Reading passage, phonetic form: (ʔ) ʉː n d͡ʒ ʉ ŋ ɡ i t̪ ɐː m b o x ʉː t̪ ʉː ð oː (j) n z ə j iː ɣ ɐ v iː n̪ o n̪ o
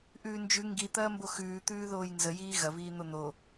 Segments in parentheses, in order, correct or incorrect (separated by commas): correct, correct